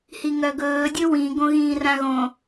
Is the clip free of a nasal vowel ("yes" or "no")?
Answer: no